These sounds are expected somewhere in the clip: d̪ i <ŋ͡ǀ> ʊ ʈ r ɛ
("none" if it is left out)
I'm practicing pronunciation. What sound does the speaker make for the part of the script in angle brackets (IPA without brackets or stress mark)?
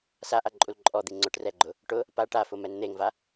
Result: ŋ͡ǀ